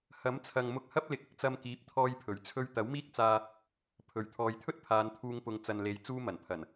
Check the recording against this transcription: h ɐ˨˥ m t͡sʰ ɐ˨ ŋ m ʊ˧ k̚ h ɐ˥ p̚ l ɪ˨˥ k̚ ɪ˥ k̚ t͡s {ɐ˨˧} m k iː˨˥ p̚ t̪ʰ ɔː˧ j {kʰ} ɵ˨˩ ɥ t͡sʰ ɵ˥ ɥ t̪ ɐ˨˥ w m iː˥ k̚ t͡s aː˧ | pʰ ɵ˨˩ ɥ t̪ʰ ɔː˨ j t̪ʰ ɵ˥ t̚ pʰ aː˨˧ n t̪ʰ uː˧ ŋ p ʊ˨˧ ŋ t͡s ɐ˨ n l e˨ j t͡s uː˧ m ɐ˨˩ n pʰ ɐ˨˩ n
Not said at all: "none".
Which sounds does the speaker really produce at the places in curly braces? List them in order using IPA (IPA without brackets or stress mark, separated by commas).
ɐ˧, pʰ